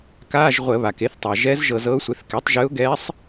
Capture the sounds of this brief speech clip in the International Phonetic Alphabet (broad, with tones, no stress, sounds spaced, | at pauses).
k aː˧˥˧ ʒ ʁʷ ə˧˩˧ β a˩ k e˧˥ θ tˤ a˩ ʒ ɛ˧˥ z ʒ ɤ˧˩˧ z ɤ˧˥ ʊ̯ sʷ ɘ˩˥ θ k ɛ˩˥ tˤ ʒ ɨ˧˥ ʊ̯ ɡ ɛ˧˥ sˤ